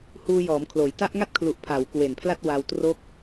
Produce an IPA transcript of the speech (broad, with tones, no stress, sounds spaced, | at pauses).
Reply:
h uː˧ j ɔː˩˦ m kʰ l oː˩˦ j t a˦˥ ʔ ŋ a˥˩ t̚ kʰ l u˨˩ ʔ pʰ a˩˦ w k w e˨˩ n pʰ l a˥˩ t̚ w a˧ w t r o˦˥ k̚